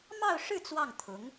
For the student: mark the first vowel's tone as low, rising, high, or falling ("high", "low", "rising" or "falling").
falling